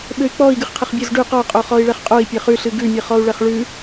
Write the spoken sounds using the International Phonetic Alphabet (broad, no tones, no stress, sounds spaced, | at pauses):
ɓ ɘ y̯ k͡p ɔ i̯ ɡ ɨ χ qʰ ɘ χ bʲ o z ɖ ʉ q ɔ qʼ o χ ɔ i̯ ɭ ɛ χ qʼ o i̯ pʲ ɘ χ ʉ ɬ ɨ ɡ ʉ mʲ ɨ χ ɔ u̯ ɭ ɛ χ ɭ ʉ